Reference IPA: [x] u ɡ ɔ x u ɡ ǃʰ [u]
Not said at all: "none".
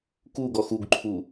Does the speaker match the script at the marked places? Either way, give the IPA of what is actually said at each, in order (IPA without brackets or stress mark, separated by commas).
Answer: k, u